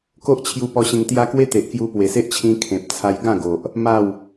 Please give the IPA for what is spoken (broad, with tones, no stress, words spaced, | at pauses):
ko˦ʔt͡ɕʰju˧ pɔ˧ɕẽ˧ŋt̪ja˦ kwe˦ t̪e˨ʔ kju˧pwe˨˩se˦ʔt͡ɕʰĩ˧ kʰẽ˨p̚t͡sʰa˧j ɡã˥˧ɡo˨ʔ | ma˥˧w